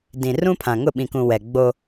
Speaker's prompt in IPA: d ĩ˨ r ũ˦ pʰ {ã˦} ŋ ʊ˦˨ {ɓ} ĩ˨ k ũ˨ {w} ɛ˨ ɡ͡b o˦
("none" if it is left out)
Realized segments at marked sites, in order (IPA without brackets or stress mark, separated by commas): ã˨, ɓ, w